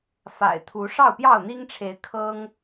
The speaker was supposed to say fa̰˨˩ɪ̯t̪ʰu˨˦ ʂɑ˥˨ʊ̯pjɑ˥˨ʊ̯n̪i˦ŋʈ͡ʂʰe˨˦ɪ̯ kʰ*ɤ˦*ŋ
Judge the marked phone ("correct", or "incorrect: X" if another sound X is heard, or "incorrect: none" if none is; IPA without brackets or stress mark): correct